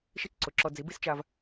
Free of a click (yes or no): no